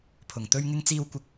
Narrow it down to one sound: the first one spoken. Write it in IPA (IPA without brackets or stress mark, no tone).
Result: pʰ